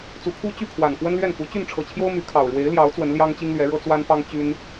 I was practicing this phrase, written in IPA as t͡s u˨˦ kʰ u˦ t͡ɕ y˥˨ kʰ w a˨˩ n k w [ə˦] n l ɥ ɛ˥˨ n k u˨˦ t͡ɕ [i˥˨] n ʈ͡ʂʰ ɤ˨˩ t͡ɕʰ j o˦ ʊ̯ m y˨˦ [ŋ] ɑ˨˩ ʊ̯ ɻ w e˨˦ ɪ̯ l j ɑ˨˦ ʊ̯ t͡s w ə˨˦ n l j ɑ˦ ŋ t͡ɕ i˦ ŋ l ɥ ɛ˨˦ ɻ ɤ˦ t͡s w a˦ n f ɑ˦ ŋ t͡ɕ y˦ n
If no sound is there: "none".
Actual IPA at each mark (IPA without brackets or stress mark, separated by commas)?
ə˦, y˥˨, kʰ